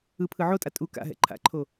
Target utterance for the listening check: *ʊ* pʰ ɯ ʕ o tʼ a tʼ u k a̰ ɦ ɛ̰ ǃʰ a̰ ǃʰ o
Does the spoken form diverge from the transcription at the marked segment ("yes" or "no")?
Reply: yes